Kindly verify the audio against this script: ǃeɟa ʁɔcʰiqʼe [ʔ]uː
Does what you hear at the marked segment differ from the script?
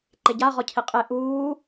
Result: no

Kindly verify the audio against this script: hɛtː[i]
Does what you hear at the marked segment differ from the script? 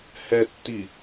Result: no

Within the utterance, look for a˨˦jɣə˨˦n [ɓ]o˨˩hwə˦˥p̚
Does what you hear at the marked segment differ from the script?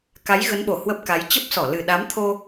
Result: no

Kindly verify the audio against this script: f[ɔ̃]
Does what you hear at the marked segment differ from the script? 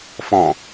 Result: no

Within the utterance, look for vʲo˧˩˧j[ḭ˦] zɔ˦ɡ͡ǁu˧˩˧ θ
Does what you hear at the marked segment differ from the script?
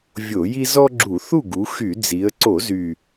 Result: yes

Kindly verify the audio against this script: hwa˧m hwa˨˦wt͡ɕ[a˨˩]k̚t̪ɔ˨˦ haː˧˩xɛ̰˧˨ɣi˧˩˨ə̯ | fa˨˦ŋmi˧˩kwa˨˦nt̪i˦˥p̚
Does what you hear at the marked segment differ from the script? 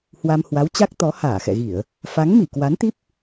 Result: yes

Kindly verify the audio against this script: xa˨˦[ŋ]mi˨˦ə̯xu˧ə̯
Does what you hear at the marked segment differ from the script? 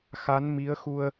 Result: yes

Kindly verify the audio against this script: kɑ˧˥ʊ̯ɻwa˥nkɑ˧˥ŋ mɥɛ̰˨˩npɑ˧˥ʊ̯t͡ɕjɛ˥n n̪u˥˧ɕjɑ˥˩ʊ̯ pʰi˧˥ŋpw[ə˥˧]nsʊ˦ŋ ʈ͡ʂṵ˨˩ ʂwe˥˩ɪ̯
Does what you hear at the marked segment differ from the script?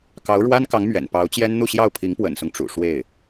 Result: yes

